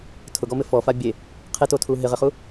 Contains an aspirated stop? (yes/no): yes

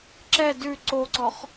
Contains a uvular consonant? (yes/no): yes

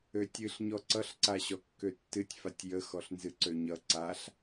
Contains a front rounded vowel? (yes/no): yes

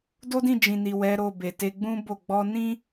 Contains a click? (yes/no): no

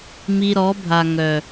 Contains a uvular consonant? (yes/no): no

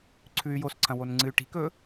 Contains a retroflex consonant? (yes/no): yes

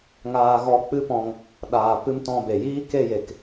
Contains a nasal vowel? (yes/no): yes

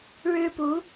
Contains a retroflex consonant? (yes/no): yes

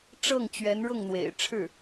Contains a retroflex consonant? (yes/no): yes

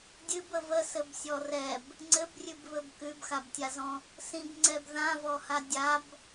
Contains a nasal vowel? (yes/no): yes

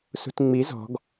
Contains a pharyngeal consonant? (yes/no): no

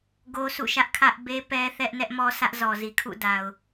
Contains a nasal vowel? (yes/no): no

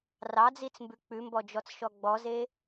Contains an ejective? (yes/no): no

